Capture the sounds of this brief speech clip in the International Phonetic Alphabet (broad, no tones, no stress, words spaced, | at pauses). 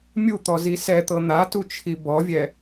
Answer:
mʲut̪ɔ zisɛt̪ɤ n̪atu t͡ʃʰibɔvʲɛ